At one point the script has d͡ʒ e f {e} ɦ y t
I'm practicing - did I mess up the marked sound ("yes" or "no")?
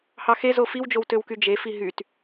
yes